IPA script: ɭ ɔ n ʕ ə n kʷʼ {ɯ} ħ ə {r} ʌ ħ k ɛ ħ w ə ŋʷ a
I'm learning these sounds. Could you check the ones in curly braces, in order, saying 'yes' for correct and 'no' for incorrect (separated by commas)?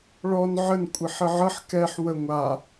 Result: no, no